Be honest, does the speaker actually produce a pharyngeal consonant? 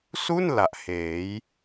no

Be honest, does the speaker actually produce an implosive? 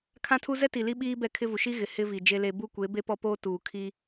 yes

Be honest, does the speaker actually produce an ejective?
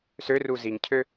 no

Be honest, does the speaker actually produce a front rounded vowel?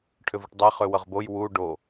yes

